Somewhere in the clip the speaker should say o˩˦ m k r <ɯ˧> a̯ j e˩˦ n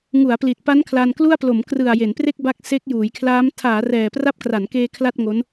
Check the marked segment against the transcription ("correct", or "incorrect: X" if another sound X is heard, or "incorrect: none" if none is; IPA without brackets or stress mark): incorrect: ɯ˨˩